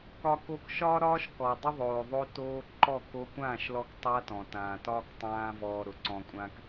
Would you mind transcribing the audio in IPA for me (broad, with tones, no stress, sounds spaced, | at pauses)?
k ɒ˧ k o˧ k ʃ ɒː˦ ɾ ɒː˦ ʃ k ɔː˨ dˤ ʏ˦ ðˤ oː˨ ðˤ o˧ t oː˧ ǃ ɔ˦˨ k o˧ kʷ ãː˦˨ ʃ l ɔ˧ k tˤ a˦ t ɔ̃˨ t ãː˨ t ɒː˦ k tˤ ãː˦ v ɔː˧ ɾ ʊ˨ ǀ ɔ̃˧ kʷʼ ãː˦ k